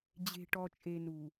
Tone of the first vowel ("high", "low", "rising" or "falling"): low